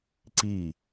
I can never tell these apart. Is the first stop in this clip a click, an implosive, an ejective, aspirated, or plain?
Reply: click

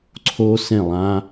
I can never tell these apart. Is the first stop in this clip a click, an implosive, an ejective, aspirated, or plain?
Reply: click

